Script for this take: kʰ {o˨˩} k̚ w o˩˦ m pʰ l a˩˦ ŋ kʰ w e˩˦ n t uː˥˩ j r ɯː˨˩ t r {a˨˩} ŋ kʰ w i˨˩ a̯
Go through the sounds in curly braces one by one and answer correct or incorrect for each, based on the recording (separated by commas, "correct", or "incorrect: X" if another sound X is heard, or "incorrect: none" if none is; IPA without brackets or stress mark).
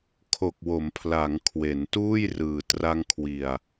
correct, incorrect: a˧